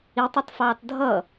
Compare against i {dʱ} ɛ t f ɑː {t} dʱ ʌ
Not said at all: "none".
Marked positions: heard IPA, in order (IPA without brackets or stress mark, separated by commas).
tˤ, t